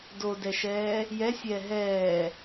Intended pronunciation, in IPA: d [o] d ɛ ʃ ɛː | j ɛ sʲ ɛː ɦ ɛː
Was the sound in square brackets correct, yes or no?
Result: yes